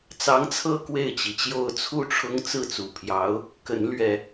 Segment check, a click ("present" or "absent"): absent